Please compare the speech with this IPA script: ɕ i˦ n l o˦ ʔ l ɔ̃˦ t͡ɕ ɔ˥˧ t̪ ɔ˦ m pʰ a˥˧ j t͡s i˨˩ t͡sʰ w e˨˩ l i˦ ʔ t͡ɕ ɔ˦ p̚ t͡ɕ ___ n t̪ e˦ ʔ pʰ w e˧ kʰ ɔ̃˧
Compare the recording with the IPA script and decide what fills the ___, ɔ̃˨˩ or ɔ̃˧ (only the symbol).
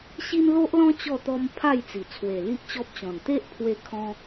ɔ̃˨˩